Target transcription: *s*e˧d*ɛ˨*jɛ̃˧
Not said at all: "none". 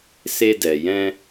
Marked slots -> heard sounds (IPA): s, ɛ˨

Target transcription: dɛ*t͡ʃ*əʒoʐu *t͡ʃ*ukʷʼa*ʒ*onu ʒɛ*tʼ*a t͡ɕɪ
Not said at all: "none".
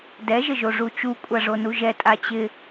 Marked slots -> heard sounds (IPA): ʒ, t͡ʃ, ʐ, tʼ

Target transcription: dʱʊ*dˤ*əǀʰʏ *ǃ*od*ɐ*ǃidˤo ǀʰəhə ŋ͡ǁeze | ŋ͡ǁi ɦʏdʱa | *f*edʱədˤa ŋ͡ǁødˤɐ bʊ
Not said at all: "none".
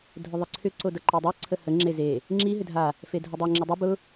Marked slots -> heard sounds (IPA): ðˤ, ǀ, ɐ, f

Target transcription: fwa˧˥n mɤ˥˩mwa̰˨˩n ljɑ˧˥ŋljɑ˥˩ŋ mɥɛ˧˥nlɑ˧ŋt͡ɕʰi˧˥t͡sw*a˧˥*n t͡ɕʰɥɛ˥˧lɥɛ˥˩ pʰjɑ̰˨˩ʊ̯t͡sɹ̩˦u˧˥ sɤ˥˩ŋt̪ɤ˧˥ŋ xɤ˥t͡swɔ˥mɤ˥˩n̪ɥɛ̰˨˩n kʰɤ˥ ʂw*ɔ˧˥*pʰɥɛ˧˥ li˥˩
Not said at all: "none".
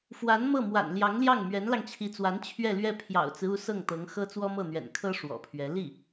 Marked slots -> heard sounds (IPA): a˧˥, ɔ̰˨˩

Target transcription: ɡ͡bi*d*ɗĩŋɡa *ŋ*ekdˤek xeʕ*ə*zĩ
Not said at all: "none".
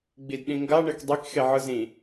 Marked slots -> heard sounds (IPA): d, ɳ, ɯ

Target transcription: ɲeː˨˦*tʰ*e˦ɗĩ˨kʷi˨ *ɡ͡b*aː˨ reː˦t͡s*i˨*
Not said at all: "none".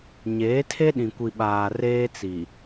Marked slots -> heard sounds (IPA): tʰ, ɓ, i˨

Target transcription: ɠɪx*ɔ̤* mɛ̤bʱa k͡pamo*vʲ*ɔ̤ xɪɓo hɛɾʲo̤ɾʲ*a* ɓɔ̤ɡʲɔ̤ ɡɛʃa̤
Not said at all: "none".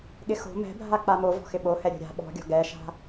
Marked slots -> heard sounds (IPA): o̤, v, a̤

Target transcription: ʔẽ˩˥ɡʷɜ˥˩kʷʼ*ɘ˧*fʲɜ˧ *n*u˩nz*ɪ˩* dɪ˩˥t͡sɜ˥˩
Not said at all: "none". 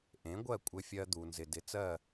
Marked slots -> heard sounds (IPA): ɘ˧, d̪, ɪ˩

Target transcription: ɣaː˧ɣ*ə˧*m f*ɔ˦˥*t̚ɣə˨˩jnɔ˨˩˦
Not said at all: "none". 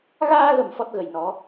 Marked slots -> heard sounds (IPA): ə˨˩, ɔ˦˥

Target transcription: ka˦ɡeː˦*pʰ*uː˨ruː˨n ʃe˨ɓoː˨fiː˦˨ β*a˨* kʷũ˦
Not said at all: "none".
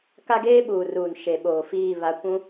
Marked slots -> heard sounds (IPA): ɓ, a˦

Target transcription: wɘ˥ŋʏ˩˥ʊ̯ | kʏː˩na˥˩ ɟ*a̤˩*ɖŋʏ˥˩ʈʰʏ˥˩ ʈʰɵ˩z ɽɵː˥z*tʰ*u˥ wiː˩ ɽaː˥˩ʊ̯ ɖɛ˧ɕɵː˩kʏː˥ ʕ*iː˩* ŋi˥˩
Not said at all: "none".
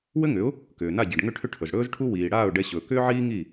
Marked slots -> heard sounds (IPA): a˩, ʈʰ, iː˥

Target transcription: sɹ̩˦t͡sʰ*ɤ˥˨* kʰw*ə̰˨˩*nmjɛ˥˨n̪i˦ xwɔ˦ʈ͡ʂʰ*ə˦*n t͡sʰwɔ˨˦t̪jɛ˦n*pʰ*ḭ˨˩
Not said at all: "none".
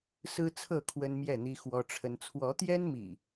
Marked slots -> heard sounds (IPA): ɤ˥˨, ə˦, ə˦, m

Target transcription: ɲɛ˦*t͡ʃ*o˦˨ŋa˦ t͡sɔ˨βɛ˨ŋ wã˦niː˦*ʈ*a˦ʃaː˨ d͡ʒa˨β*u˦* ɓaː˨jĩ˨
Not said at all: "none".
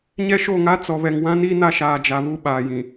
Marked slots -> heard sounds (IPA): ʃ, n, u˦˨

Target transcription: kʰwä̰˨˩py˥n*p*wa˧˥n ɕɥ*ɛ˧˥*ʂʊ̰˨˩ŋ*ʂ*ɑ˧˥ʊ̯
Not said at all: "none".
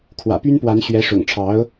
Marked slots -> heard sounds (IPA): p, ɛ˧˥, ʈ͡ʂʰ

